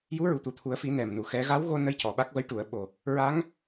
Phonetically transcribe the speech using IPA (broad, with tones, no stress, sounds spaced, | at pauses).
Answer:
j u˧˥ ɹ u˨˩ t̪ u˨˩ t̪ʰ u˨˩˦ ə̯ f i˨˩˦ n ɛ˨˩ m n u˨˩˨ x ɛ˧˥ ɣ a˧˥ w ɣ o˧ n ə˧ j c ɔ˨˩ ɓ a˦˥ k̚ v ə˧˥ j ʈ u˨˩˨ ə̯ ɓ o˨˩ | ɹ a˧˥ ŋ